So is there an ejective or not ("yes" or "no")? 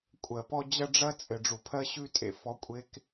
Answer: yes